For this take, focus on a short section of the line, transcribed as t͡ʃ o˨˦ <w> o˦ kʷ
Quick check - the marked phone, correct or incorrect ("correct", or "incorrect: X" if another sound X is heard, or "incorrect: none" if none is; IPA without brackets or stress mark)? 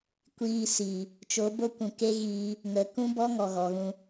incorrect: b